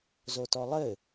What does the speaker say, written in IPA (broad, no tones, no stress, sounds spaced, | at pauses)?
z o t ɔ lˠ ɘ